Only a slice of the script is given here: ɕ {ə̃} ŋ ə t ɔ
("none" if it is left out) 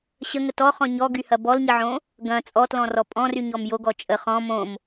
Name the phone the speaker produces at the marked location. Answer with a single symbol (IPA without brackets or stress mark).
ə